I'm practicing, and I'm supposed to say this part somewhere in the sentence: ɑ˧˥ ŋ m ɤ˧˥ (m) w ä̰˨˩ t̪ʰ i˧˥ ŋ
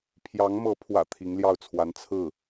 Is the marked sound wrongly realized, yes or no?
yes